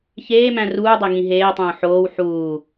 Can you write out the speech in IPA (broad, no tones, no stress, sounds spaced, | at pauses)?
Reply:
ç eː m æ̃ r uː dˤ e ŋ ĩ ɦ eː tˤ õː ħ oː w ħ uː